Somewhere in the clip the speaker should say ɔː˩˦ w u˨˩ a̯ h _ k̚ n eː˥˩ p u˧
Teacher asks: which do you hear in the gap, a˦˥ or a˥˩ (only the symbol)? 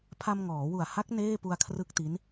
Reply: a˦˥